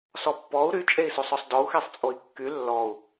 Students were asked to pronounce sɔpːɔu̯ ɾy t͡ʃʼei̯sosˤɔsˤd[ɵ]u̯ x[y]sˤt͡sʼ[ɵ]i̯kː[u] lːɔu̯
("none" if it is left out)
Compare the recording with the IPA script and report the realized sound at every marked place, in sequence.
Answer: ɔ, e, o, y

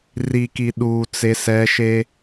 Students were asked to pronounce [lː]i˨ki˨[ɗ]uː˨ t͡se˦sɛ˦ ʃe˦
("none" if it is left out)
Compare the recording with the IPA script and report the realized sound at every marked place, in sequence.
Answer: r, ɗ

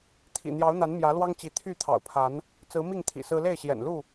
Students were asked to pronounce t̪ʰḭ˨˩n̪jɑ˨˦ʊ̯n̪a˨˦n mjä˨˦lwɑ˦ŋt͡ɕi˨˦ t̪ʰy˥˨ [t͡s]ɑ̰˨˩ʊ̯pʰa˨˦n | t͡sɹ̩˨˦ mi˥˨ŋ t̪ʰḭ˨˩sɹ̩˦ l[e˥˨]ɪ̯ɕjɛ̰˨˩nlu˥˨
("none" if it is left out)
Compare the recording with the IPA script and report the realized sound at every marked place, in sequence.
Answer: t̪ʰ, e˥˨

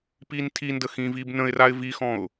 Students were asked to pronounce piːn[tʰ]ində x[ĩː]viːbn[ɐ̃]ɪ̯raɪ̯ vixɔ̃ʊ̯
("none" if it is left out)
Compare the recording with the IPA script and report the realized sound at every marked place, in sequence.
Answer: tʰ, ĩː, ə̃

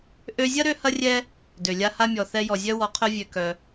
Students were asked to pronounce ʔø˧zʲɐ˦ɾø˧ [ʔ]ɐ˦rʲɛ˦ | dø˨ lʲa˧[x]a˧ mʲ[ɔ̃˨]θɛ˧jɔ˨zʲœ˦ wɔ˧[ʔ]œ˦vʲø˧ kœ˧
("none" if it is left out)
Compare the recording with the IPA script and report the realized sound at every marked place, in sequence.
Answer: h, h, ɔ˨, qʰ

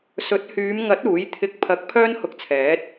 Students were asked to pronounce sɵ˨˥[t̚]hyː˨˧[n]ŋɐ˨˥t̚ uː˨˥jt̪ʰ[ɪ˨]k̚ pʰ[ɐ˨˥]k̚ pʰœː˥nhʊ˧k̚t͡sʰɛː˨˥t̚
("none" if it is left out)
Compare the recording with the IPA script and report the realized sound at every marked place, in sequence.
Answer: t̚, m, ɪ˧, ɐ˨˥

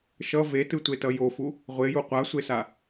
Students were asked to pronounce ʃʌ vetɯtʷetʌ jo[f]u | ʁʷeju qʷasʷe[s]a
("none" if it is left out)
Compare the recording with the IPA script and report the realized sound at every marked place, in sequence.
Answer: f, s

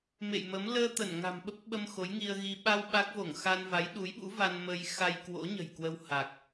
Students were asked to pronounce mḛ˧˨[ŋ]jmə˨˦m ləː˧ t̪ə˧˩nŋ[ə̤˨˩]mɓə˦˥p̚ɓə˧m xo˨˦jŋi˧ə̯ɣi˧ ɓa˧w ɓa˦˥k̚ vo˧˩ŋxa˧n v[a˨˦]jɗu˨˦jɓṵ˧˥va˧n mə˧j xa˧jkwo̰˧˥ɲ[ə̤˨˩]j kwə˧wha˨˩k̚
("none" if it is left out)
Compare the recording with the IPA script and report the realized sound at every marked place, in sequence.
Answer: none, a̤˨˩, a˨˦, ə̤˨˩

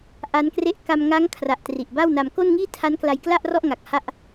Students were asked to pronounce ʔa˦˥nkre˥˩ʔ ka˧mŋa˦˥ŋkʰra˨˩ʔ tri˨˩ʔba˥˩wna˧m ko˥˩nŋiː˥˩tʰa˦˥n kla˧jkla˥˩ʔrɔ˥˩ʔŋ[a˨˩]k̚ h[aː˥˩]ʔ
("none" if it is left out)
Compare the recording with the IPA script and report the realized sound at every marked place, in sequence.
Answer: a˨˩, a˥˩

